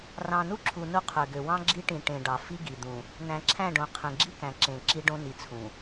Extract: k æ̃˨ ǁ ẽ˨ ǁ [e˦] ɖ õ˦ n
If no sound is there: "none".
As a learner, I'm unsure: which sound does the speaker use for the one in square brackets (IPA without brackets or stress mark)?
i˦